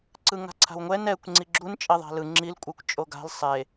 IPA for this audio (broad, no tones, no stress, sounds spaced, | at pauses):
ǀ ɯ ŋ a̤ ǀʰ a̤ w ŋʷ ɛ n ɛ kʷ ŋ͡ǀ i ɡ͡ǁ u n t͡ʃʼ e ðˤ a̤ l ɯ ŋ͡ǁ i l kʷʼ ɯ kʷ t͡ʃʼ o ɡ a̤ l sˤ e